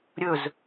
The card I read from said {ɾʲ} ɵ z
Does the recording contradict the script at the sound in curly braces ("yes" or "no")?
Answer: no